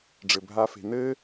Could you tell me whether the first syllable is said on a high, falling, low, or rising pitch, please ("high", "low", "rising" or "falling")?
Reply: low